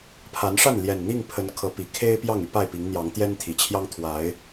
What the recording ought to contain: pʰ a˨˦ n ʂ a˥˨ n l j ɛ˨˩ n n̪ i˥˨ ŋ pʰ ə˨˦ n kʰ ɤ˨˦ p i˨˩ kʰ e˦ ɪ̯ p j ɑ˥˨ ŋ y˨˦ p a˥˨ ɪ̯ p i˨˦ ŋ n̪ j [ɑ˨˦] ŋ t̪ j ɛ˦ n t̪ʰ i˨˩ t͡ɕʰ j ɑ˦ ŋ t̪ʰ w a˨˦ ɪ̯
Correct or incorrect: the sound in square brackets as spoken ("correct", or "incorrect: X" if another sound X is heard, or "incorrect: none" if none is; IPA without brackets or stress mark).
correct